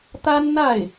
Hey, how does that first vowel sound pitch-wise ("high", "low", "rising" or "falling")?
high